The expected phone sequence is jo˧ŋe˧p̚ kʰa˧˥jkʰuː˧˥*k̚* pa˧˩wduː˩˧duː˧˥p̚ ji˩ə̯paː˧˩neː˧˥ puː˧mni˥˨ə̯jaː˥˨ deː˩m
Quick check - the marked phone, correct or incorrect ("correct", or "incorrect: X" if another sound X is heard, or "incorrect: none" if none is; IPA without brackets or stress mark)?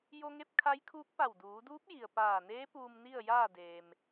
correct